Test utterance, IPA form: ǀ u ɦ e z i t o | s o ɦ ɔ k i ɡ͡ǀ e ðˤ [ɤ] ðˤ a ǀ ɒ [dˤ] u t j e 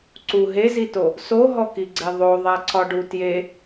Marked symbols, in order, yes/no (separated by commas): no, no